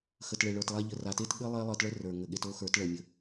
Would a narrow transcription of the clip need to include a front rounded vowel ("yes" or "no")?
no